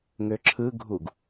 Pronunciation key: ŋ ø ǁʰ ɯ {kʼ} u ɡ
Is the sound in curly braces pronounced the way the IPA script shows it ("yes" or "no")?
no